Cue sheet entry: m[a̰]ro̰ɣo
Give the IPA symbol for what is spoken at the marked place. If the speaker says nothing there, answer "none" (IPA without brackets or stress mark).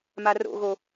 a